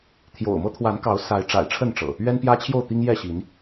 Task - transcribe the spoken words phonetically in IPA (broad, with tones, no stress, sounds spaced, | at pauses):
t̪ʰ j o̰˨˩ ʊ̯ m ɤ˦ t̪ʰ w a˨˦ n k ɑ˨˦ ʊ̯ s a˨˦ ɪ̯ ʈ͡ʂ a̰˨˩ ɪ̯ ʈ͡ʂʰ ə˥˨ n ʈ͡ʂ ɤ̰˨˩ | ɥ ɛ˦ n p j ä˦ t͡ɕʰ j o˥˨ ʊ̯ t̪ i˦ ŋ j ɛ˥˨ ɕ i˨˦ n